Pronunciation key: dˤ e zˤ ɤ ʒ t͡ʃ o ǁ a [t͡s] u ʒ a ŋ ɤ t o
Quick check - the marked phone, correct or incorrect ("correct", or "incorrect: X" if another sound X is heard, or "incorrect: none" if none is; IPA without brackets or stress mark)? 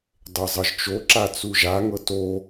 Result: correct